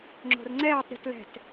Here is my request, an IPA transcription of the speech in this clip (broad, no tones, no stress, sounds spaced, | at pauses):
ŋ͡ǁ o̤ r ŋ͡ǀ ɛː tˤ ɾʲ o̤ t l ɛ̤ t